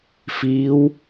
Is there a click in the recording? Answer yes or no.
no